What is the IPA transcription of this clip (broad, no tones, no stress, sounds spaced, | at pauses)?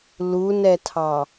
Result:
l u n ɛ tʰ ɑ